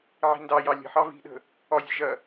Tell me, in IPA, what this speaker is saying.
ʕ i̤ n d ɑ j ɑ lʲ ə̤ ħ ɑ v i̤ ɗ ə̤ | ɒ zʲ ə̤ ʒ ɐ

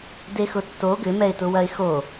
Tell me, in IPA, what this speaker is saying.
d e x ʊ tː o ɡ ʏ m ɛ ɪ̯ t ʊ w ɐ ɪ̯ x o

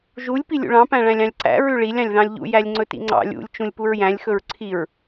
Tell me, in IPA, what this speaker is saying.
ʒ u lʲ p i lʲ ṵ ɭ ɑ̃ p æ̃ ɭ æ̃ lʲ ɑ̃ lʲ ǀ æ̰ ɹ ʉ ɭ i lʲ ɑ̃ lʲ ð ɑ̃ lʲ ʎ ṵ j æ lʲ ŋ͡ǀ ɵ t ḭ ŋ͡ǀ ɑ̰ lʲ ṵ lʲ t͡ʃ ũ lʲ p u ɹ j æ̃ lʲ x ɵ ɹ ǀʰ i ɹ

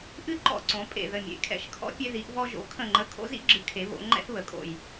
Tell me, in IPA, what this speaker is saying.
ʔ ɨ˦ ǃ ɔ̰˧˩ ǀ õ˩˧ pʼ ḛ˧˩ ð ə˧˩ mʲ ḛ˩˥ kʰ ɛ̰˧˩ ʃ kʰ ɔ̰˦ pʲ e˦ ð i˩˥ ʔ v ɔ˦ ʒ o̰˩˥ kʰ ə̃˧˩ ŋ͡ǃ ə˧˩ kʰ o̰˦ z ḭ˦ ɡ͡ǁ ɨ˩˥ kʰ e˩˧ β o̰˩˧ ŋ͡ǃ ɛ̰˦ θ β ə˩˧ kʼ o̰˧˩ j

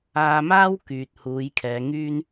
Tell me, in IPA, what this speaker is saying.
aː˧ m aː˥ w k yː˨ t̚ h uː˨˧ j kʰ ɛː˨˧ ŋ yː˥ n

